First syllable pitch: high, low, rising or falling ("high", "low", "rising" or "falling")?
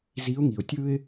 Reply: rising